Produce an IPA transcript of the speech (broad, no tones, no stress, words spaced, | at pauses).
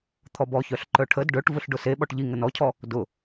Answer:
t̪ʰɔbɔçœɬǃœ ʈʰəd ɖœʈ vʊɬɖʊse ɓɔʈʎi ŋənɔcʰɔ | dʊ